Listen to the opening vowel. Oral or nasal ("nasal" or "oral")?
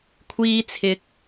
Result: oral